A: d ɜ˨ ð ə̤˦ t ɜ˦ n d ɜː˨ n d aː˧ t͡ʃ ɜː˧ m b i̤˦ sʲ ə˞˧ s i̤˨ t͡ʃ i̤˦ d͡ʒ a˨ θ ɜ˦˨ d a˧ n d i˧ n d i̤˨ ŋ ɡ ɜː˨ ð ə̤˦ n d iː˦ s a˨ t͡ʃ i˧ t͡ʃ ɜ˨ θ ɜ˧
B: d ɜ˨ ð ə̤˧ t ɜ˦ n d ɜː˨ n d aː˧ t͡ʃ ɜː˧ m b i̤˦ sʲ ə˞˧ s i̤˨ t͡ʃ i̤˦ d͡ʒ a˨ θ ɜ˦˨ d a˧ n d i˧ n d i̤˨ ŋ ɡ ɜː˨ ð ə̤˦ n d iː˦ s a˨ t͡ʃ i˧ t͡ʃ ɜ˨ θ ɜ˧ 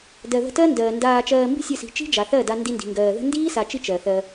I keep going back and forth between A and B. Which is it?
B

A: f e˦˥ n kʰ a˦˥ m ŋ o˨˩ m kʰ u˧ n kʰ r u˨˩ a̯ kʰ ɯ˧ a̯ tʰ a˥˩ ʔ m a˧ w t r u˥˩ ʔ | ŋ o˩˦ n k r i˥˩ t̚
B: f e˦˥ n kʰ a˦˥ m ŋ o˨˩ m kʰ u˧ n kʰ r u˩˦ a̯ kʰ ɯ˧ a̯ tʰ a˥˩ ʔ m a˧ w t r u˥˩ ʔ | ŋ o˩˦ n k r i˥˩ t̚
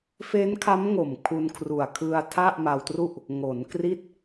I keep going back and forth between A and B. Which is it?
A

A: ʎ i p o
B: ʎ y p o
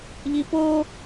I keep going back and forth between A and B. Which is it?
A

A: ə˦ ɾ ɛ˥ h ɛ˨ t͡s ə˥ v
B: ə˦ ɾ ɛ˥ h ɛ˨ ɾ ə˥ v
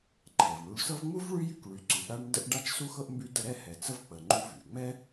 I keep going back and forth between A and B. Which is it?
A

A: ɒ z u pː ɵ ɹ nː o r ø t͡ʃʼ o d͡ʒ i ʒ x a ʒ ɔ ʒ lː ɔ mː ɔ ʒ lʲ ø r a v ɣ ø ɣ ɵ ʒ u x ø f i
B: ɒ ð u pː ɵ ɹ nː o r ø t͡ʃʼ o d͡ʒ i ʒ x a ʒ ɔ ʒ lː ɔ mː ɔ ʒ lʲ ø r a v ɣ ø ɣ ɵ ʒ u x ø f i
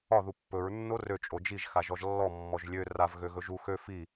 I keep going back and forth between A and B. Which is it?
B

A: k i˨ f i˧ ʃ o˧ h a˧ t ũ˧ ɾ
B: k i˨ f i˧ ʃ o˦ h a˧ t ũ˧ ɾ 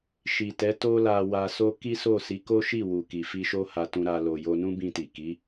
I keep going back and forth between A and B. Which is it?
B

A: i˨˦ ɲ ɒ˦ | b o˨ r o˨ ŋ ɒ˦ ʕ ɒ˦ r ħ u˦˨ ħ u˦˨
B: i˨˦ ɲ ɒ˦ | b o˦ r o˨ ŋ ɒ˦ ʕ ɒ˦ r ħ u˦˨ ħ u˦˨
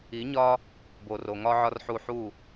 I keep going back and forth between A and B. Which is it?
A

